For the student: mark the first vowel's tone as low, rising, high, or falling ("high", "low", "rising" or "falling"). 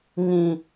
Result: low